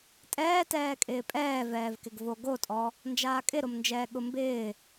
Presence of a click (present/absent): absent